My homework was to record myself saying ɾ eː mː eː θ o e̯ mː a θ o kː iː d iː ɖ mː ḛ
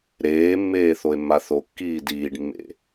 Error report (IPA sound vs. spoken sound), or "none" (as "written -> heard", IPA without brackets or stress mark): none